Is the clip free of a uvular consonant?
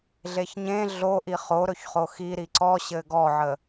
no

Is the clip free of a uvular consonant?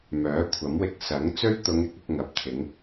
yes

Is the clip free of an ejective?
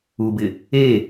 yes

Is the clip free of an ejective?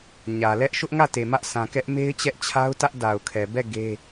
yes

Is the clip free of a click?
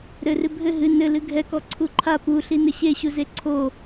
no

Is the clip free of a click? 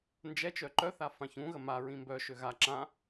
no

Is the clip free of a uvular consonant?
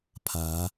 yes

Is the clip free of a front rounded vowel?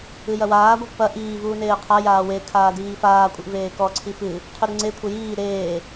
yes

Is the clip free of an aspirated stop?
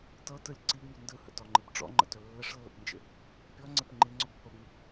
yes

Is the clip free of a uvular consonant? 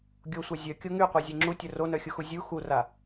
no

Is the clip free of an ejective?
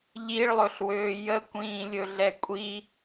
no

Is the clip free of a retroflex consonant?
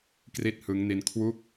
yes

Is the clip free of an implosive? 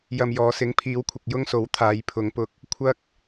yes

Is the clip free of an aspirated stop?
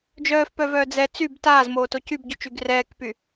yes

